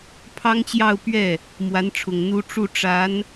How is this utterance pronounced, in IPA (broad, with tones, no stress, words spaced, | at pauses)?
pʰɑ˥ŋt͡ɕjɑ˥˧ʊ̯ pɥɛ˥˩ | mwa˧˥nʈ͡ʂʰʊ˨˩ŋ n̪u˥ ʈ͡ʂu˥˩ ʈ͡ʂa˧˥n